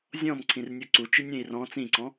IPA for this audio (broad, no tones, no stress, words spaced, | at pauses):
zʲɔ̃mǀʰĩrnʲu ǀut͡ʃinʲẽi̯ rɔ̃ t͡sĩǀɔ̃